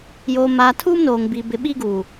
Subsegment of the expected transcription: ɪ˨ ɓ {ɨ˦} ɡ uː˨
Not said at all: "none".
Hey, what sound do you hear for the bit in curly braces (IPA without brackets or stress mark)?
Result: i˦